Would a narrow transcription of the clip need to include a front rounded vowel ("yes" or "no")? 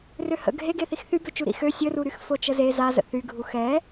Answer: yes